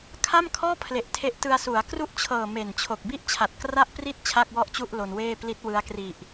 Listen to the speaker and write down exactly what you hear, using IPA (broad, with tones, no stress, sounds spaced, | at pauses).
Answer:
kʰ a˥˩ m kʰ ɔː˥˩ pʰ l e˨˩ ʔ tʰ e˦˥ ʔ t ɯ˧ a̯ s u˩˦ a̯ k r u˥˩ ʔ t͡ɕʰ ɤː˨˩ m e˨˩ n t͡ɕʰ o˨˩ k̚ b i˥˩ ʔ t͡ɕʰ a˨˩ t̚ k r a˥˩ ʔ p r i˥˩ t̚ t͡ɕʰ a˥˩ k̚ w ɔ˥˩ ʔ t͡ɕ u˥˩ ʔ l o˧ n w eː˥˩ p l i˦˥ t̚ w ɯ˦˥ a̯ k r i˨˩ ʔ